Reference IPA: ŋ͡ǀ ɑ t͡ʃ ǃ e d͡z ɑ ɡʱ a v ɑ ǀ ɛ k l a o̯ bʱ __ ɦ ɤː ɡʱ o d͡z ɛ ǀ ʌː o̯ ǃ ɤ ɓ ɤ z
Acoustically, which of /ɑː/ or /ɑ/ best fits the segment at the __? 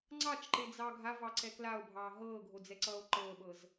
ɑː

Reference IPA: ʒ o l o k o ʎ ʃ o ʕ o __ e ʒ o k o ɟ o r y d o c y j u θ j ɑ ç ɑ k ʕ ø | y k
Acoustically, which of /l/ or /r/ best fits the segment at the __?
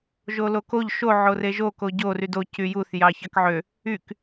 r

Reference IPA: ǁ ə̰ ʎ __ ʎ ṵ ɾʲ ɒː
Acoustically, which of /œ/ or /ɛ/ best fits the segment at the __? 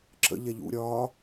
ɛ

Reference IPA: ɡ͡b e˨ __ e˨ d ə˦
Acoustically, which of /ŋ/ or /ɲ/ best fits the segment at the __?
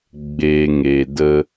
ŋ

